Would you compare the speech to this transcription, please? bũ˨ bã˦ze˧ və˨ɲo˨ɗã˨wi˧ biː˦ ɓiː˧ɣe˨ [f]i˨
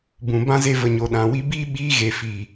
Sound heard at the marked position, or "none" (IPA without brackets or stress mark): f